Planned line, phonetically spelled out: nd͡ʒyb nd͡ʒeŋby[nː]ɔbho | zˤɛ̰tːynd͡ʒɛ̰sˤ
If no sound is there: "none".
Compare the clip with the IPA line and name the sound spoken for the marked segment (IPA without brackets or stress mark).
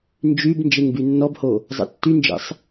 nː